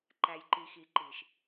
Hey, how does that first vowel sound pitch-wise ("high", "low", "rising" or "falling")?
low